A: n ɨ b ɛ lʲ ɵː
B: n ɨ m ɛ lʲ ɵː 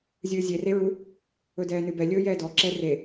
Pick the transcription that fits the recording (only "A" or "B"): A